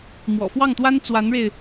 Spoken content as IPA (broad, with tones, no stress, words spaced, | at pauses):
mwɔ̰˨˩fwɑ˥˩ŋt̪wa˥n t͡swa˧˥nɻe˧ɪ̯